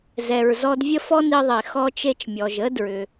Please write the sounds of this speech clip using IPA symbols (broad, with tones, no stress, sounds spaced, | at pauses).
z ɛ˩ ɹ z ɔ˧ d vʲ ə˥ f ɔ˥ n i˧ ðˤ e˩ x ɔ˧ t͡ʃ e˧ t͡ʃ mʲ ɔ˩ ʒ ə˥ d ɹ ʏ˩